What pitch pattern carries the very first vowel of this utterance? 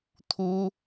high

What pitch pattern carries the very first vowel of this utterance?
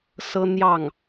high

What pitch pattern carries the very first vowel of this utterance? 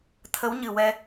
rising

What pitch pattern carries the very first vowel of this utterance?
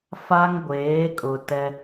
high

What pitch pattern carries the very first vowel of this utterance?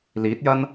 rising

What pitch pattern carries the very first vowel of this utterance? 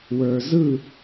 low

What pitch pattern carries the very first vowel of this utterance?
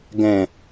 low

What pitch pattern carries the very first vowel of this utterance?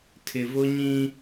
low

